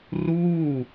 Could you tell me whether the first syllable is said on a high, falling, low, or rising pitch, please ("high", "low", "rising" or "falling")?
falling